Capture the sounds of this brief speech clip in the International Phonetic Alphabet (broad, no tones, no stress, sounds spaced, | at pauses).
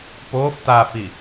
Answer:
p oː f t̪ a f i